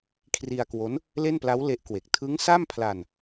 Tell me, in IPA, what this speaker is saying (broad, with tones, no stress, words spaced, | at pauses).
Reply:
kʰri˧a̯kwo˦˥n | le˥˩npla˦˥w le˦˥ʔkwe˨˩k̚ tʰɯ˦˥ŋsa˥˩mpʰla˧n